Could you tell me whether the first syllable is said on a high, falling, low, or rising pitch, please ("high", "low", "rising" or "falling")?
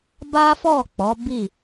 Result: high